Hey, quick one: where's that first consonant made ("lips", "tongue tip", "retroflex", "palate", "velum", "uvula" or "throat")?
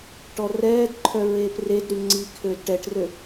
retroflex